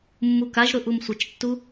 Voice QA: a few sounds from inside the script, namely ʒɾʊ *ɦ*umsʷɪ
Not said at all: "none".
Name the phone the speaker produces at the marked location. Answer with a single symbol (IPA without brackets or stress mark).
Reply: ʔ